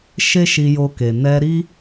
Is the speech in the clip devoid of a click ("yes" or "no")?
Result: yes